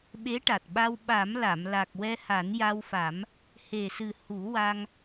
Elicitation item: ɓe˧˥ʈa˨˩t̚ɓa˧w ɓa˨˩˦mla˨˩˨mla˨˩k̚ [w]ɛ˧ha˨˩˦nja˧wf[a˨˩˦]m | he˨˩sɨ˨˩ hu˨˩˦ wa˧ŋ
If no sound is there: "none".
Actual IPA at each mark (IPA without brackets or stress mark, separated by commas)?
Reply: w, a˨˩˦